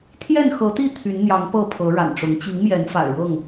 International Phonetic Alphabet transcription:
t̪ʰ j ɛ˥˨ n x ɤ˨˦ t̪ i˥˨ t̪ʰ y˨˦ n n̪ j ɑ˨˦ ŋ p ɤ˥˨ pʰ ɤ˨˦ ɻ a̰˨˩ n ʈ͡ʂ ʊ˨˦ ŋ t͡ɕ i˨˦ ŋ m j ɛ˨˦ n f a̰˨˩ ɪ̯ ɻ ɤ˥˨ ŋ

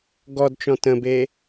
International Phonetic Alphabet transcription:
ɡ ɔ d t͡ʃ ɔ̃ t ə̃ b e

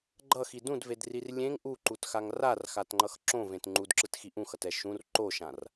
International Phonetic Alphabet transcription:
ɡ͡ǃ ʌ x i d ũ d v e d r i r lʲ ẽ ŋ ʔ u ǃ u t x a ŋ r a r x a t ŋ͡ǃ ʌ x ǁ õ v ẽ t ŋ͡ǃ u d ǁ ɯ t x i ʔ ũ x ʌ t ɛ ʃ ũ r ǃ o ʃ ã r

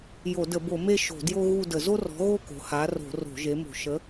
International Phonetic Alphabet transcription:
j o˧˩˧ d ə˧˩˧ b o˧˩˧ m e˥˧ ʃ o̤˧˩˧ d j o˥ ɣ u˥˧ d ə˧˩˧ z o˥ r ɔ̤˨˥ ɣ o˥˧ k o̤˩˧ h a˨˥ r o̤˧˩˧ r o̤˧˩˧ ʒ e˨˥ m o̤˧˩˧ ʃ ə˨˥

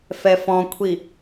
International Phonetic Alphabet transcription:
f ɛ f ɔ̃ kʷʰ i

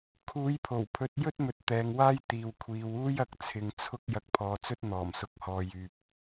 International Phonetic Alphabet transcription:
kʰ uː˨˥ j pʰ o˨˩ w pʰ ɵ˨˥ t̚ j ɵ˥ t̚ m ɵ˨ t̚ t̪ ɛː˨˧ ŋ w aː˥ j t̪ iː˨ w kʷʰ iː˨˧ w uː˥ j ɐ˧ k̚ t͡sʰ ɪ˨ ŋ t͡sʰ ʊ˥ k̚ j ɐ˧ k̚ pʰ ɔː˨˧ t͡s ɵ˥ t̚ n̪ ɔː˨˩ m s ʊ˨ k̚ h ɔː˨ j yː˨ p̚

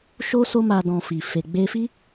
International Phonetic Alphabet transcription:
ʃ o˦ s o˦ m a˧ d ɔ̃˧ f i˨ f e˨ ɡ͡b e˧ f i˦

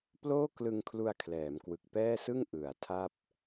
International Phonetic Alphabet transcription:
p l oː˥˩ k l ɯ˧ ŋ kʰ l u˧ a̯ kʰ l ɛː˩˦ m k w ɯ˨˩ k̚ p ɛː˥˩ s ɯ˥˩ ŋ ʔ ɯ˩˦ a̯ tʰ a˥˩ p̚

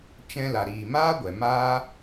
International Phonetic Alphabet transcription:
t͡ʃ ɛ̃˧ l a˨ ɾ iː˨ m aː˦ ɡʷ ɛ˨ m aː˦

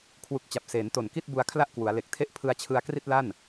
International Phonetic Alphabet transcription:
kʰ w u˨˩ k̚ t͡ɕ a˨˩ p̚ s eː˩˦ n t o˨˩ n k i˥˩ t̚ b u˧ a̯ kʰ l a˥˩ ʔ k w u˩˦ a̯ l e˨˩ k̚ tʰ e˥˩ ʔ pʰ ɯ˧ a̯ t͡ɕʰ ɯ˧ a̯ k r i˥˩ t̚ l a˥˩ n

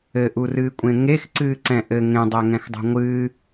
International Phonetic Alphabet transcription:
ɘ ʔ u r ɨː kʷʼ ẽ ŋ e x ǀ ɨː ǀ ɛ̃ ʔ ɘ ŋ ẽ dˤ ɛ ŋ ɛ̃ x dˤ o̤ ŋʷ ɨː

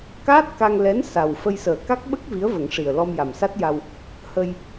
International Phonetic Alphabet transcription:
k aː˦˥ t̚ k a˧ ŋ l ɛ˧˥ n s a˨˩ w f ə˧ j s əː˨˩ k a˦˥ k̚ ɓ ə˦˥ k̚ v i˧˥ ə̯ v ə˨˩˦ ŋ ʂ i˨˩ ə̯ l ɔ˧ m j a˨˩ m s a˦˥ t̚ j a˧ w | h ə˧ j

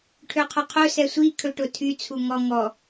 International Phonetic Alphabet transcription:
ʈʰ ø qʰ ɵ qʰ ɵ s ɛ sʷ i kʰ ɵ ʈ ʊ tʰ y t͡sʰ u ŋ ɔ ŋ ɔ

